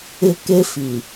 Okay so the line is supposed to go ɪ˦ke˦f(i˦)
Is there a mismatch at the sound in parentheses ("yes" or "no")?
yes